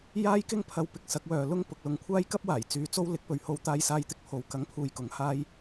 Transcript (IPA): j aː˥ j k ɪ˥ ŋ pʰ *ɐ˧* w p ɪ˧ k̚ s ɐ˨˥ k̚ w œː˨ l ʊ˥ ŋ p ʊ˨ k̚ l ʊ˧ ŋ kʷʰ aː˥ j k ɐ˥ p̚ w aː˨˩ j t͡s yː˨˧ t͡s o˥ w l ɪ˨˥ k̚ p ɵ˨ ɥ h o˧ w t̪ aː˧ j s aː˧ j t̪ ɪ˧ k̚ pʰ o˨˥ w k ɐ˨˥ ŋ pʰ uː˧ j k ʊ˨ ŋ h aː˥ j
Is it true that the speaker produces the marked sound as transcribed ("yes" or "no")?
yes